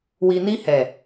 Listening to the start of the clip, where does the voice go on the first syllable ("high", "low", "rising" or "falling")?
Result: low